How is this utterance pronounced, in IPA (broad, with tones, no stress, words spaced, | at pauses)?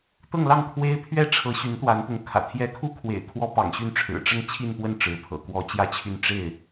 t̪ɤ˥˧ŋlɑ˥˩ŋkʰwe˥ɪ̯ pʰɥɛ˥ʈ͡ʂʰɤ˧˥ ɕy˧˥nt̪wa˧˥npʊ˧˥ŋ kʰä̰˨˩t̪ʰjɛ˥ kʰu˥kʰwḛ˨˩ɪ̯ kʰwɔ˥pɑ̰˨˩ŋɕy˥˩nʈ͡ʂʰɻ̩˨˩ ʈ͡ʂə˥˧n t͡ɕʰi˥˧npwə˥˩n ʈ͡ʂɻ̩˧˥ pʰɤ̰˨˩ kwɔ˧˥ t͡ɕjä˥˧t͡ɕʰy˥˧n ʈ͡ʂe˥˩ɪ̯